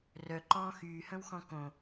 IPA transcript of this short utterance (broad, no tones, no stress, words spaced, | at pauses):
rœǃɔ̃ː xyːhə̃wxɔ̃ kõ